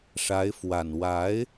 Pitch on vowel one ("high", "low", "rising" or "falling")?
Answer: rising